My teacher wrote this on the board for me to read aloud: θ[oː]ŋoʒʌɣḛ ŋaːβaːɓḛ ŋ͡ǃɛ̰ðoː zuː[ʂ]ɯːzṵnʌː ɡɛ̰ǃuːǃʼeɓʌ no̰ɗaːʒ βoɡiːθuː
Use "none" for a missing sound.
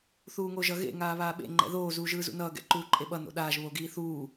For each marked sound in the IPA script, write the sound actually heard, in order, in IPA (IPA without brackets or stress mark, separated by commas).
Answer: uː, ʒ